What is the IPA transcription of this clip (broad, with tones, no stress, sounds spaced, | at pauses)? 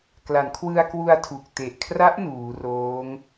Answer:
k l a˩˦ n kʰ w ɯ˧ a̯ k w u˧ a̯ tʰ u˨˩ k̚ t e˨˩ ʔ kʰ r a˦˥ ʔ n uː˩˦ r oː˦˥ ŋ